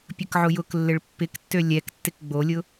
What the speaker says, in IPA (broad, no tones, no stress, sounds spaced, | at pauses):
pʲ ə k ʕ ʊ j ʊ k lː ɪ ɭ pː ɪ k tː ø lʲ ɛ k tː ɪ k ɡ͡b o lʲ ʊ